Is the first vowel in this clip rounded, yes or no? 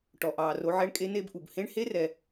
yes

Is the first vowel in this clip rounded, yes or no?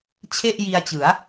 no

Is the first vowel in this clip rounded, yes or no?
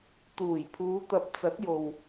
yes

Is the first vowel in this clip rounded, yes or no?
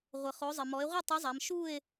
no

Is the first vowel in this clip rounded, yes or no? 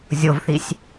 yes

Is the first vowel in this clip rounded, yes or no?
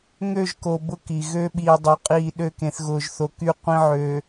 yes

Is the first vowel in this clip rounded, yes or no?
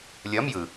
no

